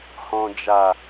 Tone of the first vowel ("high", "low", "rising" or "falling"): low